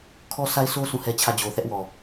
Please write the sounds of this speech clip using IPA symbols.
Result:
kʰ ɔ˦ s a˦ ɪ̯ sʰ o˦ s ũ˦˨ h ɛ˦ t͡ɕʰ ä˦˨ d͡ʑ o˨ θ ɛ˦ ʔ w ɔ˨

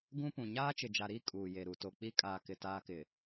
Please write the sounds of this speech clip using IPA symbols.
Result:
ɡ ũ˦ p ũ˨ ɲ aː˦ t͡ʃ ɪ˨ d͡ʒ a˨ ɾ iː˦ kʼ uː˨ j e˨ ɾ u˨ t o˨ k͡p i˦ kʼ aː˨ k ɪ˨ t aː˦ k ɪ˨

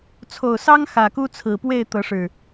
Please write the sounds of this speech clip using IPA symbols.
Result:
t͡sʰ o˨˩ ʊ̯ s ɑ˦ ŋ x ä˨˩ k u˦ t͡sʰ ɹ̩˨˩ p w e˥˨ ɪ̯ t̪ ɤ˨˦ ʂ ɻ̩˨˩

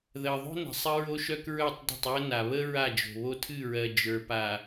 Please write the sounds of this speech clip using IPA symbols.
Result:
ð ɜ˨ ðˤ o̤˦ n ə̤˨ sˤ ə˦ ɹ o˦ ʃ œ˦ k ɹ œ˦˨ tˤ d ə̤˦˨ tˤ j ə˦ n a˨ β ə˦ ɹ a˦˨ d͡ʒ o̤˨ β o˦ tʰ ɨ˦˨ ɹ ɜ˨ d͡ʒ ə˞˨ p a˨

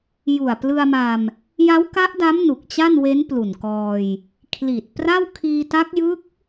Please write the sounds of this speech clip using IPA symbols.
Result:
j u˨˩ a̯ p l ɯ˧ a̯ m a˧ m | j a˦˥ w k a˦˥ ʔ d a˦˥ m n u˨˩ k̚ t͡ɕ a˥˩ n w e˦˥ n p l u˨˩ n k ɔː˧ j | kʰ l i˨˩ t̚ p r a˥˩ w kʰ iː˧ t a˦˥ k̚ j ɯ˦˥ k̚

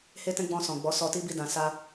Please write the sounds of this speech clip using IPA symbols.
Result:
h e˦ t ɛ̃˦ ɡ͡b ɔ̃˧ s ɔ̃˨ ɡ͡b ɔ˨˦ s ɔ˧ t i˦ b i˦˨ d ã˨ s a˧

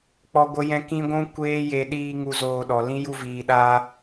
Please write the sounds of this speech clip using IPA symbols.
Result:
k͡p ɔ˦ ɡʷ ə˦ j ɛ̃˦ k ĩ˦ ɡʷ ũ˦ kʷ eː˦ j e˧ ɗ iː˧ ŋ u˧ z oː˧ ɗ ɔ˨ l ĩ˦ j u˧ v iː˨ ɗ aː˧

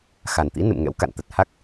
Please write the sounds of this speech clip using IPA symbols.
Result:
x a˨˩ n t̪ ḭ˧˥ n ɨ̰˧˨ m ŋ ɛ̰˧˥ w k a̰˧˨ n t̪ ə˨˩ t̚ h a˦˥ k̚

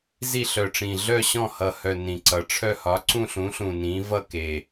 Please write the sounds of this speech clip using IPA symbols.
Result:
z i˦˨ ɬ œ˨˩ ʈ͡ʂ ĩ˨˩ ɮ œ˦˨ ɕ ɔ̃˦˨ h ʌ˨˩ h œ˨˩ n ĩ˨˩ ǀ ʌ˨˩ ʈ͡ʂʰ œ˦˨ h ɒ˩˥ ǀ ũ˦˨ ɬ ũ˩˥ ɬ ũ˨˩ n ĩ˩˥ v ʌ˦˨ k e˨˩

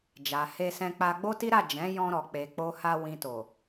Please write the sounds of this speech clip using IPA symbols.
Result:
d͡ʒ a˨ h e˧ s ɛ̃˧ k͡p a˧ ɡ͡b o˦ t i˦ ɾ a˦˨ d͡ʒ ɛ̃˨˦ j ɔ̃˧ ɾ ɔ˨ k͡p e˨ k͡p o˧ h a˧ w ĩ˨ t o˨

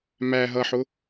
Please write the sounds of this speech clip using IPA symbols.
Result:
m æ ɦ ʌ ħ ʊ

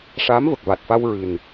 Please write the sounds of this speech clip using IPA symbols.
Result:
ʂ aː˧˥ m v ə˨˩ k̚ v a˨˩ t̚ f a˧ w ɹ ɨ˨˩ n

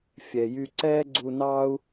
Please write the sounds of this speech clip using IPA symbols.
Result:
fʲ ɛ˩ j y˧ ǀ ɛː˥ ɡ͡ǀ u˧ n ɑː˥ u̯

